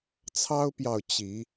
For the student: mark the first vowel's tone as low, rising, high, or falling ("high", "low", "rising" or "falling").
high